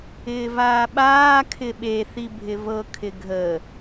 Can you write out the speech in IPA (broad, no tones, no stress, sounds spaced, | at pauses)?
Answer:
ɪː v aː ɓ aː kʰ ɪ ɓ e θ i bʱ ɪ v ɤ kʰ ɪ ɡʱ ə